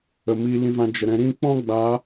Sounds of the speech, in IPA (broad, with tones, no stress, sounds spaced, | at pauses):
ə˨ m iː˧ l ĩ˧ v ã˧ d͡ʒ ə˨ ɾ ɛ̃˧ ɾ ĩ˦˨ k͡p ɔ̃˦ ɡ͡b a˨˦